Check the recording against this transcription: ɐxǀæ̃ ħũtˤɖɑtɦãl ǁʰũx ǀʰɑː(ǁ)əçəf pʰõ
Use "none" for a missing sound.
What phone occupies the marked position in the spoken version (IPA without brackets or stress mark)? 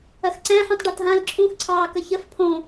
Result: k